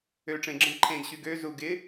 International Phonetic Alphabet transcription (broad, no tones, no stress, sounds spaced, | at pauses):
ø ʈ͡ʂ ẽ ɡ͡ǁ ɐ̃ d ǃʰ ẽ ɡ ɕ y ɡ ø z u ɡ ɪ